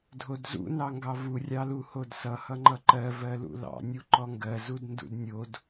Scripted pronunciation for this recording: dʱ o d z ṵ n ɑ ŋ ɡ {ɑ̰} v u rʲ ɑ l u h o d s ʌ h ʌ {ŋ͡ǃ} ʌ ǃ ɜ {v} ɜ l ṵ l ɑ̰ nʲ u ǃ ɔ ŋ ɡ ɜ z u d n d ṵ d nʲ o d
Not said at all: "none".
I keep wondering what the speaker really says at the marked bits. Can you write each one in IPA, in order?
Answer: ɑ, ŋ͡ǃ, v

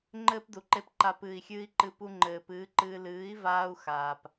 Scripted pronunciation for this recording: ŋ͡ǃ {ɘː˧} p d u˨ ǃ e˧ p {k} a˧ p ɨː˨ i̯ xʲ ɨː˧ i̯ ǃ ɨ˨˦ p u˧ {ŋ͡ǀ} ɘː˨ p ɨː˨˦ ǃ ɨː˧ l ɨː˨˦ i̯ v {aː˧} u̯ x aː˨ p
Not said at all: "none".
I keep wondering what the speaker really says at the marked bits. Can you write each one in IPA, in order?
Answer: ɘː˦, ǃ, ŋ͡ǃ, aː˧

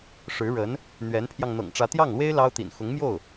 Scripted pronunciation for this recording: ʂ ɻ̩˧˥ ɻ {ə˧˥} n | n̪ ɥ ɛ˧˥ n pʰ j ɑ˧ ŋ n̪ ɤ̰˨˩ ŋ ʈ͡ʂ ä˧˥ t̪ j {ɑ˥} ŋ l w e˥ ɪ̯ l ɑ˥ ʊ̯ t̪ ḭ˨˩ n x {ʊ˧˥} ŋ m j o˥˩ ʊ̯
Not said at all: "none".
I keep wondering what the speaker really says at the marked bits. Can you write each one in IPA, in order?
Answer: ə˧˥, ɑ˥˩, ʊ˧˥

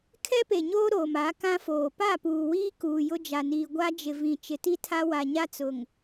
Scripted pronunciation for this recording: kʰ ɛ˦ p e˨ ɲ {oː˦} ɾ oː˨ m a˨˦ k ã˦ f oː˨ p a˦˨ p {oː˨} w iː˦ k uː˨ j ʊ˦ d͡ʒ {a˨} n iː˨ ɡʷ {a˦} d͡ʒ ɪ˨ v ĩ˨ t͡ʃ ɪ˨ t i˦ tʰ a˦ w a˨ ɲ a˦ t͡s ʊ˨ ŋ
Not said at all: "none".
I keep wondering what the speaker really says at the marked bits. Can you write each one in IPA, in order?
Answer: oː˦, uː˨, a˨, a˦

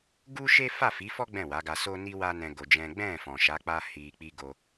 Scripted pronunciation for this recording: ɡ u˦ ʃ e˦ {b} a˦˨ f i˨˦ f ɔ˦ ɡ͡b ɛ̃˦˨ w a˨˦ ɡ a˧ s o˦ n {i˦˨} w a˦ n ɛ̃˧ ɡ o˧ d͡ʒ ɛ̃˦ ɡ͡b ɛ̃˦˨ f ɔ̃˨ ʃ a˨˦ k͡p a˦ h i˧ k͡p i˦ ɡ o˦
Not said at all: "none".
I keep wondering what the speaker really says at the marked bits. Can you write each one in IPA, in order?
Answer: f, i˦

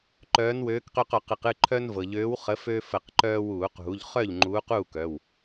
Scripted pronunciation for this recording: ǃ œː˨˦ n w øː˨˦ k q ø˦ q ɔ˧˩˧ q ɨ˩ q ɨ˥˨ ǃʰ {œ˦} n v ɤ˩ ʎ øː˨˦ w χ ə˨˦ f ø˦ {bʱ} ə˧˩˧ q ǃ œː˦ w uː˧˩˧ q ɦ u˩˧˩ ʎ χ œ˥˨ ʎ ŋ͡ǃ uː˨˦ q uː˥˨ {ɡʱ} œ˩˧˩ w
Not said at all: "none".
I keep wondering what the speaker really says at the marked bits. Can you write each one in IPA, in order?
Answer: œ˦, f, k

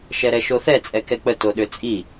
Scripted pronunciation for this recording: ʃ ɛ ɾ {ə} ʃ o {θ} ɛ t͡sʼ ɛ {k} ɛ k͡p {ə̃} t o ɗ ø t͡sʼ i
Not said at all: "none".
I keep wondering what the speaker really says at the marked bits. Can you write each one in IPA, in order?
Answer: ɛ, θ, k, ə

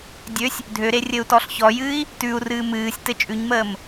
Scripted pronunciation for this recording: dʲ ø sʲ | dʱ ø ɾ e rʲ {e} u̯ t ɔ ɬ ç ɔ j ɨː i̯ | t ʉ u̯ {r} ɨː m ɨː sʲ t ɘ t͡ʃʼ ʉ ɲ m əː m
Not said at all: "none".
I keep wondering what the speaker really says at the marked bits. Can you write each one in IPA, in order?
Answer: ɘ, r

